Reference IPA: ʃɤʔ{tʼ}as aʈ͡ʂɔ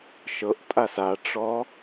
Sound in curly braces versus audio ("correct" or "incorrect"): correct